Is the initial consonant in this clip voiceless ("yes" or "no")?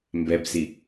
no